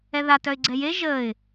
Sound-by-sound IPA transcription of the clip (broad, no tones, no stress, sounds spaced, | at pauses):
ɛ ð a t œ ɪ̯ ɡ͡ǀ ɛ j e ʒ əː ɪ̯